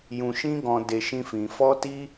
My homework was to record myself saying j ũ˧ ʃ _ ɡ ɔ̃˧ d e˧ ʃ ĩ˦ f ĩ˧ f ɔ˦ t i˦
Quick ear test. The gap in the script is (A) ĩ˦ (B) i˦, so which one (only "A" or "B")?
A